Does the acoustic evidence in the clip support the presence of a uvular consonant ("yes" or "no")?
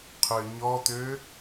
yes